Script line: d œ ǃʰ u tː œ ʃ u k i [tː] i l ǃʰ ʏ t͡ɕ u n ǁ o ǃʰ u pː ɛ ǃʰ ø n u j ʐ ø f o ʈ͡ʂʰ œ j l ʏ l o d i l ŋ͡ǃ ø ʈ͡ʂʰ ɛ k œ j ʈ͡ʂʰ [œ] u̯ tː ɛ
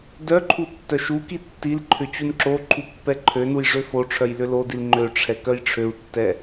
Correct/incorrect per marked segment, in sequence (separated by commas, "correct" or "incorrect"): correct, incorrect